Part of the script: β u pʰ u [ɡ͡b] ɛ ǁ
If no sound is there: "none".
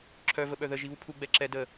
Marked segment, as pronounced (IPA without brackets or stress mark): ɡ͡b